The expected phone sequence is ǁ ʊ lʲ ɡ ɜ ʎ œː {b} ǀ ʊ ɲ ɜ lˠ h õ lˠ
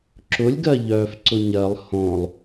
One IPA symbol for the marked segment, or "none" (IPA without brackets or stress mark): f